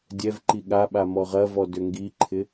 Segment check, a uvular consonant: present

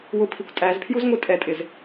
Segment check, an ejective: present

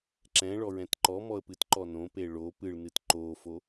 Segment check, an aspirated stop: absent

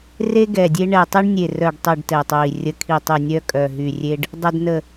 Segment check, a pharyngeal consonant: absent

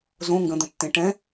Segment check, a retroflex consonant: present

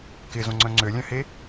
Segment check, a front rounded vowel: present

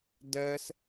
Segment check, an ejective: absent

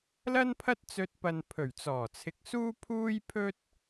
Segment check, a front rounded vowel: absent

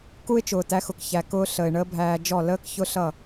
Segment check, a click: absent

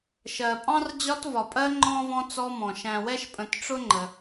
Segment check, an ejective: present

